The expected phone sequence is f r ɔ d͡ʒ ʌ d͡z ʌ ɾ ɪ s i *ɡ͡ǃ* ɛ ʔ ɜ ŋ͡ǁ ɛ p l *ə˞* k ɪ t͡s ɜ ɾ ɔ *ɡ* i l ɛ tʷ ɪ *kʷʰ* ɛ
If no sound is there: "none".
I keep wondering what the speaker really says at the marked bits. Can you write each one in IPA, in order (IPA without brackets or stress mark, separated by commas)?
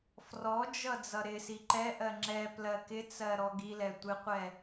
ǃ, ɜ, ɡ, qʷ